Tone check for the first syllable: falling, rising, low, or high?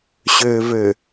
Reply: low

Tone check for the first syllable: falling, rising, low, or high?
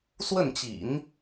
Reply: falling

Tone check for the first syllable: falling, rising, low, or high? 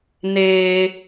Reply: high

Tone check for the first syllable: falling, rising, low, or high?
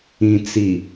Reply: low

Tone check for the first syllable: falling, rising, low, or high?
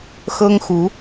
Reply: high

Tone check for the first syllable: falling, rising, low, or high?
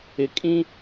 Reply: low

